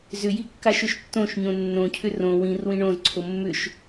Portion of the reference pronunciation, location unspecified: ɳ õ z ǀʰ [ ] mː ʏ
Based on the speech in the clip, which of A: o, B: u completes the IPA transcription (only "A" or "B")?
A